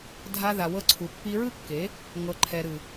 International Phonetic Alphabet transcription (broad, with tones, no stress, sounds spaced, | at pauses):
dʱ a˧ ð a˨ w ɤ˧ ǀʰ u˨ pː i˧ ɹ ɯ˦ kː e˨˦ | ŋ ɤ˨ ǃʰ ɛ˨ ɾ ɯ˨